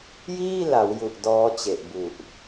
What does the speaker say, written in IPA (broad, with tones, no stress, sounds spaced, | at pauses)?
j iː˥˩ l a˩˦ w j u˨˩ ʔ d ɔː˦˥ t͡ɕ e˨˩ ʔ b u˨˩ ʔ